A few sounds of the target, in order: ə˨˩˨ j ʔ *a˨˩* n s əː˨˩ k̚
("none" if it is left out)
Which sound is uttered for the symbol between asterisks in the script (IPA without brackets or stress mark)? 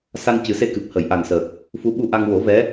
a˨˩